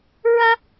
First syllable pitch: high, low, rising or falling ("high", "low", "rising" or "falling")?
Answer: high